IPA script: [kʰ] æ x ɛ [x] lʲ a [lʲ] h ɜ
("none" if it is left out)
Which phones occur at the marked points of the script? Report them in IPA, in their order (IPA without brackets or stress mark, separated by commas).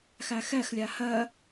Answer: x, x, none